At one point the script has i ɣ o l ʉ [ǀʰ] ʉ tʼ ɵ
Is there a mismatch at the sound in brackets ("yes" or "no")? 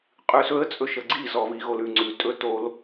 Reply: yes